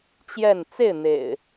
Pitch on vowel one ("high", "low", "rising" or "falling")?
falling